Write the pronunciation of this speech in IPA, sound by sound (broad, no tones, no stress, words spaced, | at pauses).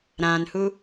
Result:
ɾãnhu